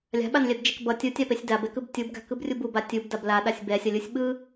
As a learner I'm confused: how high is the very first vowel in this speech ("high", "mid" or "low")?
low